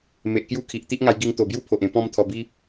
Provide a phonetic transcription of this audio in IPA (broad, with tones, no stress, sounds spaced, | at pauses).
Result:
m e˨ ʔ k j u˥˧ kʰ i˨ ʔ t̪ i˦ ʔ ŋ a˧ j ɡ i˧ ŋ t̪ o˨˩ b j u˦ pʰ o˨ ʔ ẽ˧ p ɔ̃˦ m t̪ʰ ɔ˧ b i˦